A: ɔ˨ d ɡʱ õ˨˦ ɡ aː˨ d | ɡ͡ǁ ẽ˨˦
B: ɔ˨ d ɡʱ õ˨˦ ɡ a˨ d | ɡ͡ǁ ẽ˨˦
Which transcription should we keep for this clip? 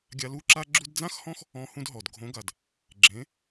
B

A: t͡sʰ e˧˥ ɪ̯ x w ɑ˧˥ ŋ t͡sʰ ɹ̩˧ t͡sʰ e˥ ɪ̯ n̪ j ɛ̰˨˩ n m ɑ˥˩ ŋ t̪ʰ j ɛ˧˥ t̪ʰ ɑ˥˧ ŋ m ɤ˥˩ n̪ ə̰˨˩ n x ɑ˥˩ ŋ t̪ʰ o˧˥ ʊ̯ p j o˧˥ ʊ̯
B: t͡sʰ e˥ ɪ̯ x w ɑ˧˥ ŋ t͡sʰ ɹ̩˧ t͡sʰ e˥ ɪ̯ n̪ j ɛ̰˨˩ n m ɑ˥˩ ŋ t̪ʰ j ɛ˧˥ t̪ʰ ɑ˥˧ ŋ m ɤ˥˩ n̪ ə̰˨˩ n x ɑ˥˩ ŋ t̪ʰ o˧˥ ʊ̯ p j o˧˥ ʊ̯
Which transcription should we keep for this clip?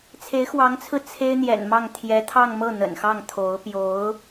A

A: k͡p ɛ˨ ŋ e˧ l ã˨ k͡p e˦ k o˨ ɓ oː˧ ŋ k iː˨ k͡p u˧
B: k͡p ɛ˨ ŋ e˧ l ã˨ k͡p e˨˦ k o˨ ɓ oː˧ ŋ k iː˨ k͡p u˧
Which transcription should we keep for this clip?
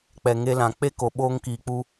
A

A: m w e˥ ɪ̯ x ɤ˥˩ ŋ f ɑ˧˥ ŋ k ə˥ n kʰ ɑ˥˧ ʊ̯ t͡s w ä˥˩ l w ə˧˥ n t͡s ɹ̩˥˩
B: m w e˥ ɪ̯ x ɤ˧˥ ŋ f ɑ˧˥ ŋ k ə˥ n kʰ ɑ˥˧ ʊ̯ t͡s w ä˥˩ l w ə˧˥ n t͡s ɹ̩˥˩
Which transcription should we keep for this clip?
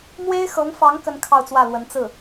B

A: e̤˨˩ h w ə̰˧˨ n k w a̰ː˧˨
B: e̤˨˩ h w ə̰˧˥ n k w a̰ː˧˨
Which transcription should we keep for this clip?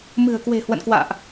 A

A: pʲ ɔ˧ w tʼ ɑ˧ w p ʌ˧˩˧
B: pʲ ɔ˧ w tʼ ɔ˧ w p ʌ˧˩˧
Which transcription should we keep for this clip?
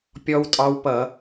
A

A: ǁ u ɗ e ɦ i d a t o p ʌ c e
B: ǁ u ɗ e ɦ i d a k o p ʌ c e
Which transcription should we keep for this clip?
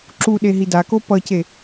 B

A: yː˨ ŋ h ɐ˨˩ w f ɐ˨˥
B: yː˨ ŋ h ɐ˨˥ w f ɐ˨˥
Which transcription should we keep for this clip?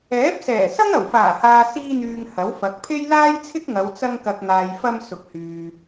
B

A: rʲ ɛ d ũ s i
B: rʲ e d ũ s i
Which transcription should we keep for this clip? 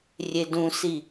B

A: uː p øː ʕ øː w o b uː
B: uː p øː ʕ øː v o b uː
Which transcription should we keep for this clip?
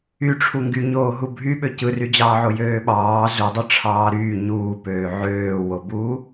A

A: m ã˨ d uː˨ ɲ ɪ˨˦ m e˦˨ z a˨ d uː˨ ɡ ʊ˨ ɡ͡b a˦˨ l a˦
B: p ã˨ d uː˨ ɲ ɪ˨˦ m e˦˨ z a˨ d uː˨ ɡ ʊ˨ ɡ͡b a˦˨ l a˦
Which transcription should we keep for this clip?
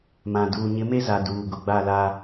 A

